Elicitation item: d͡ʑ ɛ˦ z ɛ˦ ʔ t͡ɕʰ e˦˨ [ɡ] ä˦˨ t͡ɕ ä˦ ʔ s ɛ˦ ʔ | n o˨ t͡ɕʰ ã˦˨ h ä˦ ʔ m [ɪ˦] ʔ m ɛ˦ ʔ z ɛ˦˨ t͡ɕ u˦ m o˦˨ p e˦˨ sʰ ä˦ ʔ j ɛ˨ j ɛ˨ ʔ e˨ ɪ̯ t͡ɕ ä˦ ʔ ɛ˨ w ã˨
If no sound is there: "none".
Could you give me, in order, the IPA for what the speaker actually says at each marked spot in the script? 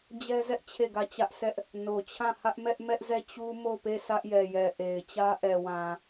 ɡ, ɛ˦

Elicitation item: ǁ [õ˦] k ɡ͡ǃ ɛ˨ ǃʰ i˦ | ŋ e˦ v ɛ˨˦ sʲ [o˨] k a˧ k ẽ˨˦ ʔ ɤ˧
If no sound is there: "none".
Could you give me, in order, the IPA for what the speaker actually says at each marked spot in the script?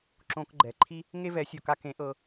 õ˧, o˨

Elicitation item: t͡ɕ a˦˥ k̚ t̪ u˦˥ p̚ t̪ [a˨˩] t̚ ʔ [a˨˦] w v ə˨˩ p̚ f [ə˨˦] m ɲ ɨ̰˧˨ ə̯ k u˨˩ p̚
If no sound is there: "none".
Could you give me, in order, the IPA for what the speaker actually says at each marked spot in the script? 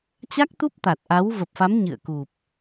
a˨˩, a˨˦, a˨˦

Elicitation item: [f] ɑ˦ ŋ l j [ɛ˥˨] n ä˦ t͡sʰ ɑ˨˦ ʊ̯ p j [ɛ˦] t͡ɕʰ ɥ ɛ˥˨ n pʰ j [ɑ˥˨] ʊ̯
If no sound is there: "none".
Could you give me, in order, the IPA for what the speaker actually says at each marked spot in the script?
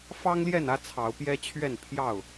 f, ɛ˥˨, ɛ˦, ɑ˥˨

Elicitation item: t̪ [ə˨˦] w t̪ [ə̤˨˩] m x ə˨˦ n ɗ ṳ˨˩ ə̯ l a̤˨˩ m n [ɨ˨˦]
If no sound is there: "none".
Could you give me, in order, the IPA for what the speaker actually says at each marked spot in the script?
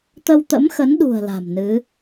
ə˧, ə̰˧˥, ɨ˨˦

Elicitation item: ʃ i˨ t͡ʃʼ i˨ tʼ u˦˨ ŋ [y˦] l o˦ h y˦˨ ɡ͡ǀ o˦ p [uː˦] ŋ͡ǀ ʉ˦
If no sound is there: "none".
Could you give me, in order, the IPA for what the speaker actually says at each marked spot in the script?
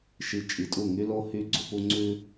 y˦, u˦

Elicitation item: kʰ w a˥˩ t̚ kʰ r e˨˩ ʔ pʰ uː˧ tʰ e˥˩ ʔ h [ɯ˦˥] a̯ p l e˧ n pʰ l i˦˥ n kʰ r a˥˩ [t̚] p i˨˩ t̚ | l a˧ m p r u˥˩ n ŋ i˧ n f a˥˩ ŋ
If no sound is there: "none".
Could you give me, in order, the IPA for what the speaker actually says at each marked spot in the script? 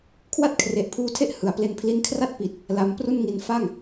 ɯ˩˦, t̚

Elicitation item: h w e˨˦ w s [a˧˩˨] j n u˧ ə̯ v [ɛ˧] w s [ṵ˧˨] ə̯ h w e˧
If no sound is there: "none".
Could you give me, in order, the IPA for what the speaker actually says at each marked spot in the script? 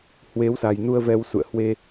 a˨˩, ɛ˧, ṵ˧˨

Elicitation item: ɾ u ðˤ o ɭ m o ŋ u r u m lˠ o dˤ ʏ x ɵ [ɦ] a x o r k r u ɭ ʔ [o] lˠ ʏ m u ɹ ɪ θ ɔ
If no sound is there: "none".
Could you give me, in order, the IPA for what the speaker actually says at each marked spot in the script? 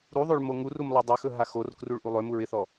ɦ, u

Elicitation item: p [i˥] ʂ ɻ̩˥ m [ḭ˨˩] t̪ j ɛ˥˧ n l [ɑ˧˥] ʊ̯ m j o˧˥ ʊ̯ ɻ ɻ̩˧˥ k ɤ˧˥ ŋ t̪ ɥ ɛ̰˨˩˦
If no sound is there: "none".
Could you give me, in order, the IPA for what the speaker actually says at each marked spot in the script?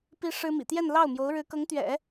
i˥, ḭ˨˩, ɑ˥˩

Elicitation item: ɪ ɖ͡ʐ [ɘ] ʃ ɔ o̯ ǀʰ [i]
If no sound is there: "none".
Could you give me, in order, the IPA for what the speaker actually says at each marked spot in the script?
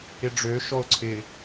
ø, ɪ

